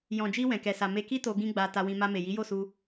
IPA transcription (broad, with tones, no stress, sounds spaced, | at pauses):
j ɔ̃˨ d͡ʒ i˧ w ɛ̃˨ k ɛ˨ s a˨ m e˧ k i˦ t o˧ ɡ ĩ˦ ɡ͡b a˧ t a˧ w ĩ˧ m a˧ m e˨ j i˨˦ j o˦˨ s u˧